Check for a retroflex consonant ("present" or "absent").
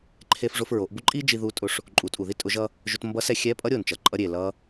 present